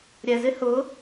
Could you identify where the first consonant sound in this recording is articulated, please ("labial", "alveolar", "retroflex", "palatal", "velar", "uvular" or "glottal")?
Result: alveolar